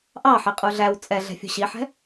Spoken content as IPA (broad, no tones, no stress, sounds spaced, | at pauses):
ʔ ɑ ħ ɪ qʼ u ɮ æ w t͡sʼ ɛ ɮ ɛ̤ fʲ ṳ ɕ i ħ ɛ̤